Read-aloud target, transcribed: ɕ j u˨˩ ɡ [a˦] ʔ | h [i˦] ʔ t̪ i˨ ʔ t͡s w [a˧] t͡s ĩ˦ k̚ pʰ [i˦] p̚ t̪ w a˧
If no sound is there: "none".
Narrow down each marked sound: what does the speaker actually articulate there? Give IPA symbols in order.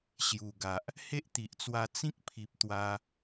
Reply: a˨, e˦, a˧, i˨

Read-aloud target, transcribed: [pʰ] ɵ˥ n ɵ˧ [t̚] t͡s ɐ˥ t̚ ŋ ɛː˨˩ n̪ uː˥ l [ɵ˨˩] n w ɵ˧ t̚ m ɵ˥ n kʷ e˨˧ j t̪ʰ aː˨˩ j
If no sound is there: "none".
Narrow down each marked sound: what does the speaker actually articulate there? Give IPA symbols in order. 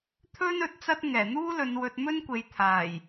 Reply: t̪ʰ, t̚, ɵ˨˧

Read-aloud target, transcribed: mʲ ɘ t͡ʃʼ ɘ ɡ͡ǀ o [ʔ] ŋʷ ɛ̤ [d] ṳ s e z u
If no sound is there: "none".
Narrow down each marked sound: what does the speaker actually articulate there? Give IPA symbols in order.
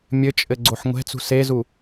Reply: ħ, t͡s

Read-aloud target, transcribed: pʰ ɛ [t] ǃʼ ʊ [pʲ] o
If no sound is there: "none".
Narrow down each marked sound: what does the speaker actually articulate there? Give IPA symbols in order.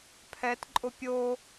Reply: t, pʲ

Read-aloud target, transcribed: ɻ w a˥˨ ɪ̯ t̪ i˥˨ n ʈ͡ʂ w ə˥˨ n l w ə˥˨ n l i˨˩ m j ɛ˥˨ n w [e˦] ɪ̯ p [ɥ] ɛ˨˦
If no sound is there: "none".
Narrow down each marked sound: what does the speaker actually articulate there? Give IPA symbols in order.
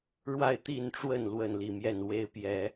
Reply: e˦, j

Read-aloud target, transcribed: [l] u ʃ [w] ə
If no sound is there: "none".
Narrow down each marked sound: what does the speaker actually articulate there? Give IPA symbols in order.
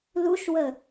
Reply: l, w

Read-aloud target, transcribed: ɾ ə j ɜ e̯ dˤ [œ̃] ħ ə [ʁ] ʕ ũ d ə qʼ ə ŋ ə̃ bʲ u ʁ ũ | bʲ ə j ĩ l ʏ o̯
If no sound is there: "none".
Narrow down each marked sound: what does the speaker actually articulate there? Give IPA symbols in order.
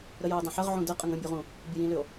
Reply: œ̃, ʁ

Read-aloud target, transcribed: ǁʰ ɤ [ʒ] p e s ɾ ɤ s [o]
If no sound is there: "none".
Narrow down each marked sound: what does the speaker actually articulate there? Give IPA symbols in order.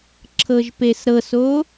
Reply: ʒ, o

